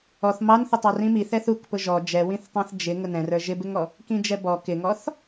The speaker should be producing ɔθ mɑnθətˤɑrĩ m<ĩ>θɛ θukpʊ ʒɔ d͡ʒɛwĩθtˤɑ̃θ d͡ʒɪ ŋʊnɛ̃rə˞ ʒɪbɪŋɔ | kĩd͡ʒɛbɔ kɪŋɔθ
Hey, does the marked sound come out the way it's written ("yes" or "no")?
no